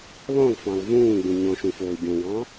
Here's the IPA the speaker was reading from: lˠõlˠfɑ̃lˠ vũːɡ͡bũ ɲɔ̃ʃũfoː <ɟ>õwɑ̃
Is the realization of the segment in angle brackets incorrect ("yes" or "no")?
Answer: no